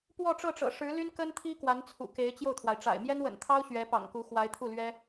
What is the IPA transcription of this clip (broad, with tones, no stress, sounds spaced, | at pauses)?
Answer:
p w ɔ˥˧ ʈ͡ʂ ɤ˥˩ ʈ͡ʂ ɤ̰˨˩ ʂ ɻ̩˧˥ l y˥ n k ə˥ n t̪ʰ i˥ k w a˧˥ n t͡sʰ ṵ˨˩ k e˧˥ ɪ̯ t͡ɕ j o˥˩ ʊ̯ t̪ʰ w a˩ ɪ̯ ʈ͡ʂ a̰˨˩ ɪ̯ m j ɛ˥ n w ə̰˨˩ n t̪ʰ ɑ˥ ʊ̯ ɕ ɥ ɛ˧˥ p ɑ̰˨˩ ŋ k u˧˥ x w a˧˥ ɪ̯ t̪ʰ u˥˩ l ɥ ɛ˥